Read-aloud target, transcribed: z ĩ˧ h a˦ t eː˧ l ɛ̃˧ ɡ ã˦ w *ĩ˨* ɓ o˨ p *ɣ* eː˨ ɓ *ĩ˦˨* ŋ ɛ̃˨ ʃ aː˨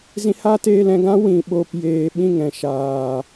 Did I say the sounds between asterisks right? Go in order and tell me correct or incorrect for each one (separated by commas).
correct, incorrect, correct